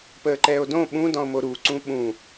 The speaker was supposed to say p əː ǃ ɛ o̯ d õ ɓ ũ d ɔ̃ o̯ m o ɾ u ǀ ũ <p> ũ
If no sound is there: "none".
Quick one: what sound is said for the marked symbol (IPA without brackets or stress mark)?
ɓ